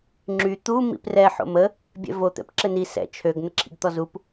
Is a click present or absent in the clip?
present